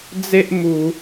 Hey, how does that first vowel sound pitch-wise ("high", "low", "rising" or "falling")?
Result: high